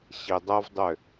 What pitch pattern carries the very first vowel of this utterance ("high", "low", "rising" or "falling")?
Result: low